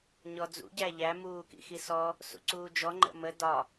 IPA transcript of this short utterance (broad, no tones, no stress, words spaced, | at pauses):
ɲɔd͡zṵ ɟæʎæ muːkḭxisɔ | sṵǀuːd͡ʒɔ ŋ͡ǃə̰mə dɒ